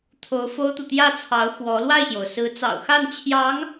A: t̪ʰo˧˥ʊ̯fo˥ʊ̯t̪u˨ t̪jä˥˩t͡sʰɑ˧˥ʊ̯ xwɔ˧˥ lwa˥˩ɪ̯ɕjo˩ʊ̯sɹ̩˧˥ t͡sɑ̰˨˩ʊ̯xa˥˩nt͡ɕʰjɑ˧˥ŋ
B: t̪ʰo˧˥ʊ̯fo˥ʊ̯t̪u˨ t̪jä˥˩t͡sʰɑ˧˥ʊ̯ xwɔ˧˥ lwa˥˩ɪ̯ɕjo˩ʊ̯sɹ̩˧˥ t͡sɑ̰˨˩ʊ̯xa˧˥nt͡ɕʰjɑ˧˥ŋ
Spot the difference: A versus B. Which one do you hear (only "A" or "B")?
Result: A